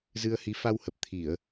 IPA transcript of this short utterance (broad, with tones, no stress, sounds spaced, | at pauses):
z ɨ˧ ə̯ h i˨˦ f a˧ w h ə˨˩ p̚ t̪ʰ i˧˩˨ ə̯